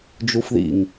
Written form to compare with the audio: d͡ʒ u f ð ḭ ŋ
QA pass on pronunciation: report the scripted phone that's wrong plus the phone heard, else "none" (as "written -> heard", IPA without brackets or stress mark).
none